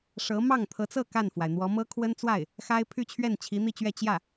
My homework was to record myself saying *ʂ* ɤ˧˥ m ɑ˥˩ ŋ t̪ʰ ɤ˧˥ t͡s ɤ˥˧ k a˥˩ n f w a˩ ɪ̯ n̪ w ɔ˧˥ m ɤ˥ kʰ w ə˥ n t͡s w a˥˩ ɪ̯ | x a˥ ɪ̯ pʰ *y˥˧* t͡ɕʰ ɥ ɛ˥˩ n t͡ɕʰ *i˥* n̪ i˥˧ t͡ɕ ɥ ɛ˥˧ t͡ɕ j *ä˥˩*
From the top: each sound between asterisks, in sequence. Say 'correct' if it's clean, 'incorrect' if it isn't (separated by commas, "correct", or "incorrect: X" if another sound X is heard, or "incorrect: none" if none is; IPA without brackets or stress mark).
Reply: correct, correct, incorrect: i˧˥, correct